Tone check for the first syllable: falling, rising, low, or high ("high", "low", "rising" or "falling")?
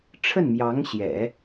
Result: falling